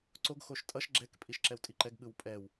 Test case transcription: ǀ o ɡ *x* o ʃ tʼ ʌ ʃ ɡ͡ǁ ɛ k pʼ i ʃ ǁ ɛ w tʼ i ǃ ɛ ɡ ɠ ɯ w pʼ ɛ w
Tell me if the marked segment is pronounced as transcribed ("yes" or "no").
yes